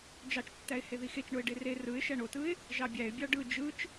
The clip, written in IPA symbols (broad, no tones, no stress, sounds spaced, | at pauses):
d͡ʒ ɑ t͡ʃ tː æ ɪ̯ h e ð i x e t͡ʃ ɳ o ɪ̯ ɖ e r e r ɯ ɪ̯ ʃ æ ɳ o t ɯ ɪ̯ | ʒ ɑ bʲ æ ɪ̯ bʲ ɑ ɖ ɯ d͡ʒ ɯ t͡ʃ